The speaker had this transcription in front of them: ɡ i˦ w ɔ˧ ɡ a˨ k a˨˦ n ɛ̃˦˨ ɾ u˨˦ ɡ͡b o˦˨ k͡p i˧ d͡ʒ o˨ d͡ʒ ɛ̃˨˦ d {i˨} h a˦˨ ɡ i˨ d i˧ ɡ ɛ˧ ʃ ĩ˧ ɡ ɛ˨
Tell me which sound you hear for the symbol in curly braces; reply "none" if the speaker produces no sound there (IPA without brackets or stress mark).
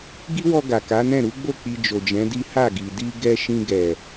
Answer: i˦